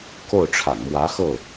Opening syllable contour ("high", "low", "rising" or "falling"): falling